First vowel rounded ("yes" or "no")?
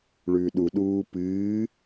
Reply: yes